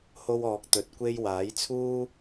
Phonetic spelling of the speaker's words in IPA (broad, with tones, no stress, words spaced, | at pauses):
ho˥wɔː˧k̚ t̪ɵ˧t̚kʷe˥j waː˨˥jt͡sʰuː˥